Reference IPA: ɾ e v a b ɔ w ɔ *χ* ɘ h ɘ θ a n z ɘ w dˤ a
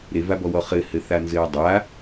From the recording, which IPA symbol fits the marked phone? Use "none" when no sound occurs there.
χ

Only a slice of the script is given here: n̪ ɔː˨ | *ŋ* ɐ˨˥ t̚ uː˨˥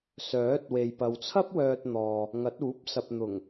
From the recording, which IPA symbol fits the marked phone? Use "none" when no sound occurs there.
ŋ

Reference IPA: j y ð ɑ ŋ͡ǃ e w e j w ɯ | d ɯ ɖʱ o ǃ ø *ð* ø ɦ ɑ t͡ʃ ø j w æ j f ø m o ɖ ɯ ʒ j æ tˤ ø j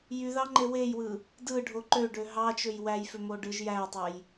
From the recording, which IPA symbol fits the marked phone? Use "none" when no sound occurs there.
ɖ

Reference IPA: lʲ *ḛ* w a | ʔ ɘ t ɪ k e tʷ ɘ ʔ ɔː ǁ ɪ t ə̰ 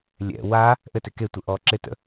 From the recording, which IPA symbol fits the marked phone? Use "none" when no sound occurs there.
ɛ̰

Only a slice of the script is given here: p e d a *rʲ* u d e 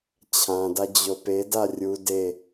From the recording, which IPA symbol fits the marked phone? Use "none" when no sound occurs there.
rʲ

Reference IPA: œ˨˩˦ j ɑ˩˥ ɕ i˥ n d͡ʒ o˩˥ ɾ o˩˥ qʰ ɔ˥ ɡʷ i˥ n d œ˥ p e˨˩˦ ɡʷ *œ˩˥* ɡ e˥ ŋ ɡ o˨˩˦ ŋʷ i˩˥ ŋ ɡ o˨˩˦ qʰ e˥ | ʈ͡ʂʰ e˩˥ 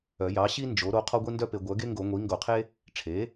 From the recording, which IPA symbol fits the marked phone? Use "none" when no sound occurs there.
œ˩˥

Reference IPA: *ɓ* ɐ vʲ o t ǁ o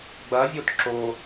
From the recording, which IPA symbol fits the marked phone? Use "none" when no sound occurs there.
ɡ͡b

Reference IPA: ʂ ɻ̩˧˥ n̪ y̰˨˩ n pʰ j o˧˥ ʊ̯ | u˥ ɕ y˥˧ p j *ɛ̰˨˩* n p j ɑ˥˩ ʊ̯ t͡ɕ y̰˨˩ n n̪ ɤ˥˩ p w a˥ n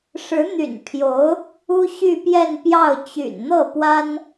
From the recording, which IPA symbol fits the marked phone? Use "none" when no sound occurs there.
ɛ˥˧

